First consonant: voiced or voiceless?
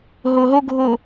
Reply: voiced